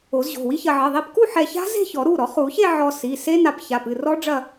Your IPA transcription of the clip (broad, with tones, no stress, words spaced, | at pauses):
o˨˩˦zʑo̤˩˧˩wi˦˥çɐ˧ ʕɘ˩˧˩ðˤi˧pku˥˧ ħɛ˧ça̤˦˥ze̤˥˧çɔ˨˩˦ ɾu˩˧˩ ɾɔ˨˩˦χu˨˩˦çe˥˧ ʕɔ˧si˩˧˩ se˦˥na˧p ça˩˧˩pɨ˩˧˩ rɔ˦˥ ɖ͡ʐɐ˥˧